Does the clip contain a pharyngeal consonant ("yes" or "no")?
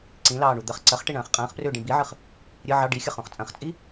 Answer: yes